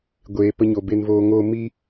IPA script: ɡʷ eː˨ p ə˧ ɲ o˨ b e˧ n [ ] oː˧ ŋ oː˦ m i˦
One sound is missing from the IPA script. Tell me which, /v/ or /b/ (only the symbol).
v